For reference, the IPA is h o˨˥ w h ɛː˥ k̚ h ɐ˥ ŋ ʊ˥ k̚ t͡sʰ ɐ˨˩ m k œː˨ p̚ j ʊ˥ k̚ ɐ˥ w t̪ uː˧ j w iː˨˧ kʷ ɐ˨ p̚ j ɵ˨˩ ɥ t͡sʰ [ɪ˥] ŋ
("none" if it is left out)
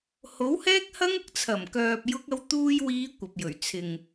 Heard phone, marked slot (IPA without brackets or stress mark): ɪ˨